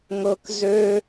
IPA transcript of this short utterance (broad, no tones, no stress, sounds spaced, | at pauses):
ŋ ɤ k z ø